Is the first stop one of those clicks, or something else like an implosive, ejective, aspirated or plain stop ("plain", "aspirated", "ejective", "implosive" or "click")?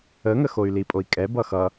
ejective